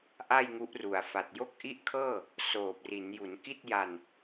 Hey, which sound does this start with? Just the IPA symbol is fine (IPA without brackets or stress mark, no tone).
ʔ